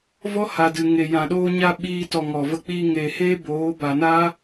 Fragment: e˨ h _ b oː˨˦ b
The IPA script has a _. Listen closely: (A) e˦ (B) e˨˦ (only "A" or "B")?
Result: A